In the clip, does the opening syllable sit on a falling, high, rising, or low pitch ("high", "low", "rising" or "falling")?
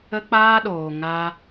high